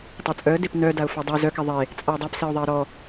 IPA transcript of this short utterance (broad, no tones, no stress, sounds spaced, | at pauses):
tˤ ɜ t͡sʼ œ ə̯ d e p n œ d a ʊ̯ f ɔ dˤ e z œ k ɛ ðˤ e | t͡sʼ a ʊ̯ dˤ a p s e ʊ̯ ðˤ e ə̯ ɾ ɔ